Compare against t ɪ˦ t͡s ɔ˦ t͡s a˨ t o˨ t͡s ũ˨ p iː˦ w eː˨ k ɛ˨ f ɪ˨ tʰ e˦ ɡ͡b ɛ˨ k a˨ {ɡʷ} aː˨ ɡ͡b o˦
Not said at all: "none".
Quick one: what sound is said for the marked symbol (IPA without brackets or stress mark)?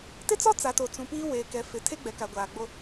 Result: ɡʷ